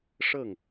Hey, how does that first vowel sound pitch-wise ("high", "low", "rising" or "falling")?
falling